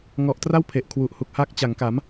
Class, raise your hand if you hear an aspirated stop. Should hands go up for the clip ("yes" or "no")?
yes